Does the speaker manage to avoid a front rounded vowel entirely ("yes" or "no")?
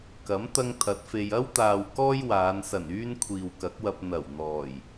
no